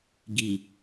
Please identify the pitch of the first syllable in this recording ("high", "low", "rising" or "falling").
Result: low